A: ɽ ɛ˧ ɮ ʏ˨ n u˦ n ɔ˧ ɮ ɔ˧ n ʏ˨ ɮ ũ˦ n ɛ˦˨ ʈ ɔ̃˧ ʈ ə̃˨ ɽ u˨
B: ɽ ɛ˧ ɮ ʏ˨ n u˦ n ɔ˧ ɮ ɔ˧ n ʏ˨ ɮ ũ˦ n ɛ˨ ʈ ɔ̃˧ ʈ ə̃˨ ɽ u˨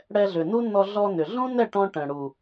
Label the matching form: A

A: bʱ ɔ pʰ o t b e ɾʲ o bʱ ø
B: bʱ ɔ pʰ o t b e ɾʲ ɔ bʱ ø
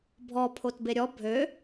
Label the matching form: B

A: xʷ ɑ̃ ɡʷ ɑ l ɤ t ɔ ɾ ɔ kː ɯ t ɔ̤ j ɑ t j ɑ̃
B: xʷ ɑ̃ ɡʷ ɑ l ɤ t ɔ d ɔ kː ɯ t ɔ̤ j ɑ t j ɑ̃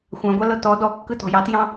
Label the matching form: B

